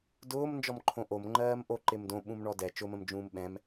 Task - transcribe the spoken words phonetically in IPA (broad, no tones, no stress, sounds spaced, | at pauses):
d ʊː m n d͡ʒ ɔ m ǃʰ õ ʔ o m ŋ͡ǃ ɜː m ʔ o ǃ ɪ m d õ ɓ ũ m ɳ ɔ d ɛ t͡ʃ ʊ m ə̃ m d͡ʒ ũː m ɓ ɛ̃ m